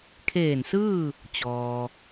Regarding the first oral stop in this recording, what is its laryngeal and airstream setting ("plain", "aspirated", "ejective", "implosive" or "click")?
aspirated